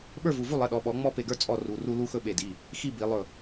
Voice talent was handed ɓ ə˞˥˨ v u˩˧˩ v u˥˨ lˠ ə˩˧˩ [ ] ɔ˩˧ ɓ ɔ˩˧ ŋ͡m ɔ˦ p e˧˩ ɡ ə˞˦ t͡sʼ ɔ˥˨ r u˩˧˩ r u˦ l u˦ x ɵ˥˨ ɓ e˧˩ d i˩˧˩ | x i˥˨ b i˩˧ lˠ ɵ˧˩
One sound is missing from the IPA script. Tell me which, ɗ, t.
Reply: ɗ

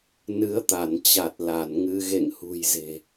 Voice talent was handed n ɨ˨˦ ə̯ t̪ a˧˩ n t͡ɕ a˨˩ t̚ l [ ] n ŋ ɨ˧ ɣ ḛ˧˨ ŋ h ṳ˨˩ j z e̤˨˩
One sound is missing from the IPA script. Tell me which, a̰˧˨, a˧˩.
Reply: a˧˩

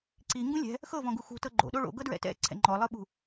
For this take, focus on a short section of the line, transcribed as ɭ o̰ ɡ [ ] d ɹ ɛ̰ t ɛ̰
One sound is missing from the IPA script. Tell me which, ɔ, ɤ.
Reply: ɤ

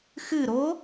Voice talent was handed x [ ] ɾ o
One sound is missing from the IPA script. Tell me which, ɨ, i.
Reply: ɨ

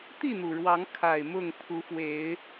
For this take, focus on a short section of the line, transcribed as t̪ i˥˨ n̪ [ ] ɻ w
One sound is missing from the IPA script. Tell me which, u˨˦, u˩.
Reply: u˩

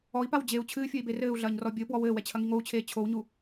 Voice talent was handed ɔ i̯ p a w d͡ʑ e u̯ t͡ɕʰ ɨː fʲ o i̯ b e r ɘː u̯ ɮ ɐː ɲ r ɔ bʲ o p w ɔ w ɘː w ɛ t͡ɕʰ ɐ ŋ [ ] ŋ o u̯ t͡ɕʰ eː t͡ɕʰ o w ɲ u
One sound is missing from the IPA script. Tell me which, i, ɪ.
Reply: i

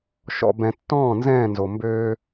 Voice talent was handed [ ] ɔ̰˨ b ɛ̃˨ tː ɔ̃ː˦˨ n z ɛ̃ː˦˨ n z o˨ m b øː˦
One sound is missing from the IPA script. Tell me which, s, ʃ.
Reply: ʃ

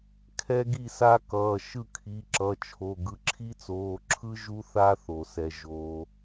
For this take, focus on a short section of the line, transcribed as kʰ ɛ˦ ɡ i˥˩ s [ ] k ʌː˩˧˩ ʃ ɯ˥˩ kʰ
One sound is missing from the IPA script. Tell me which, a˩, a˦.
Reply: a˦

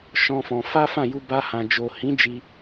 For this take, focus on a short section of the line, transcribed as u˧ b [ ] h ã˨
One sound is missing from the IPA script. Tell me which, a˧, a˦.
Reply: a˧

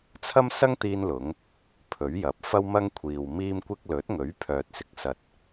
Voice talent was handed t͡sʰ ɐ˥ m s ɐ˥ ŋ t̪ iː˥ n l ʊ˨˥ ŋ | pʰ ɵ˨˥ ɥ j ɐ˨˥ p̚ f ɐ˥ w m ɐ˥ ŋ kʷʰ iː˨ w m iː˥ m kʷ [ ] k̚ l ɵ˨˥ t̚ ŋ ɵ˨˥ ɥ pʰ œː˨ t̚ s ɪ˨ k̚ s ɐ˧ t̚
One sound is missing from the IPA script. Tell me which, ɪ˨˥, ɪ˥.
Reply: ɪ˥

